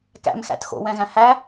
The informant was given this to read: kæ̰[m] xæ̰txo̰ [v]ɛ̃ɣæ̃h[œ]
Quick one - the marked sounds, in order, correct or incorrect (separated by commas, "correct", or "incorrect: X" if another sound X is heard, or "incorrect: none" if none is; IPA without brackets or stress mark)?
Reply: correct, incorrect: w, incorrect: æ